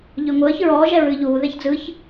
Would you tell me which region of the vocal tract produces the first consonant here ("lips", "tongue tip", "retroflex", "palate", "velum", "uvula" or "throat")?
palate